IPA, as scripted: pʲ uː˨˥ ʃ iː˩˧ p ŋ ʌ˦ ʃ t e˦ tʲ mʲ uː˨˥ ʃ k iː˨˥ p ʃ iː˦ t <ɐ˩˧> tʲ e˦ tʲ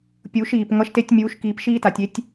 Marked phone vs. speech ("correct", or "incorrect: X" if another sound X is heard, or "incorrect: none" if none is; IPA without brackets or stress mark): incorrect: a˩˧